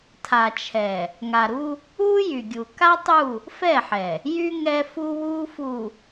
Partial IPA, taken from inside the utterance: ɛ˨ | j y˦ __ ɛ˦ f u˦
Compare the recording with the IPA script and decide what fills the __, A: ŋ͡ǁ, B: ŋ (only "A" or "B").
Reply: B